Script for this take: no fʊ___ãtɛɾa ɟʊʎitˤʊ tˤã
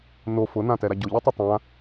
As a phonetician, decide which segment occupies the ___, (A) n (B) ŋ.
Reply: A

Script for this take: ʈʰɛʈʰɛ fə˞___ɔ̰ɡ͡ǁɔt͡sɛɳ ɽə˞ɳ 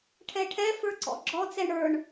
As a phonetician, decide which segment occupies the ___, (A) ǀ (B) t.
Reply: A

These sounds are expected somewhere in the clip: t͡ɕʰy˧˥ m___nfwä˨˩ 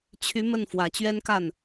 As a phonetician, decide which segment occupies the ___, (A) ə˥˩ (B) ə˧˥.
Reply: A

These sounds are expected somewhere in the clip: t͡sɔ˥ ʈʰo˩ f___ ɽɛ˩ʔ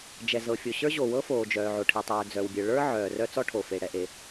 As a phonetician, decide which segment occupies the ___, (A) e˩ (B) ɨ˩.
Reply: A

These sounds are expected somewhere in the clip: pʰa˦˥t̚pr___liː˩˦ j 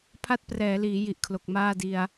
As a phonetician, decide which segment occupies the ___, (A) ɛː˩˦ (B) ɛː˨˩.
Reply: A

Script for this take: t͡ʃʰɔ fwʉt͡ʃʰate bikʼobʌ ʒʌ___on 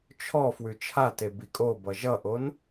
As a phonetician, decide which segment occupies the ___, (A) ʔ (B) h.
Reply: A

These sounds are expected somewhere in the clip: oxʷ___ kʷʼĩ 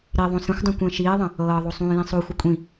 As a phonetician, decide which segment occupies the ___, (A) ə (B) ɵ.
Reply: A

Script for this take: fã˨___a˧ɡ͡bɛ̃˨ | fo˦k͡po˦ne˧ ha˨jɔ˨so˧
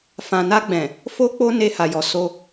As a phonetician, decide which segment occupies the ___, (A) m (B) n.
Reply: B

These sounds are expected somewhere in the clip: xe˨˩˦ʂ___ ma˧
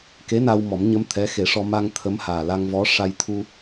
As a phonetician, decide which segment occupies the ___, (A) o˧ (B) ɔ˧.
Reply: B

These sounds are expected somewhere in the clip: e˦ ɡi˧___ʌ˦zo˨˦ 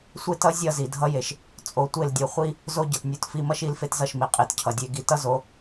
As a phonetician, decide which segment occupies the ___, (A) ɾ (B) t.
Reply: B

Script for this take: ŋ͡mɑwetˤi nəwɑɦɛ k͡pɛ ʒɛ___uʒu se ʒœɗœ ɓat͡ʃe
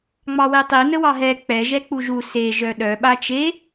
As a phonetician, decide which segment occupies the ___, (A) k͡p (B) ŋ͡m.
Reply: A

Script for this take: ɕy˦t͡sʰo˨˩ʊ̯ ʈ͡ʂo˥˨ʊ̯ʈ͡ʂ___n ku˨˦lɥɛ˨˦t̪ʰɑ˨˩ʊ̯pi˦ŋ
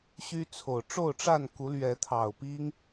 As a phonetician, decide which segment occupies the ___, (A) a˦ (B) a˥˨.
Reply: B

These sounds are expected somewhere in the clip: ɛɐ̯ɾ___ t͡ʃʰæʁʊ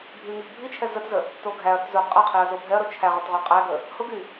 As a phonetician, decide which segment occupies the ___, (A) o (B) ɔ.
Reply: A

